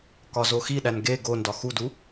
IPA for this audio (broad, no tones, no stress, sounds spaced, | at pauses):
k ɒ z o x i ɗ æ n ɡ e ɡ o n d ɒ x u d u